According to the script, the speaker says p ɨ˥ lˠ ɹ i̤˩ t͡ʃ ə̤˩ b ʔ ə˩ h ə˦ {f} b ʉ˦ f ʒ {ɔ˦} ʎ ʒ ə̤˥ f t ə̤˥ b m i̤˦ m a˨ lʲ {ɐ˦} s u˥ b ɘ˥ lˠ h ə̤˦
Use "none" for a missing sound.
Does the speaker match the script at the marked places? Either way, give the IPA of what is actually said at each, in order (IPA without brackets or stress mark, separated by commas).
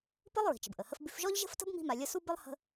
f, ɔ˥, ɐ˦